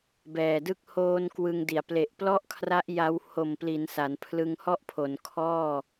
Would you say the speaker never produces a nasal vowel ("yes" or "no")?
yes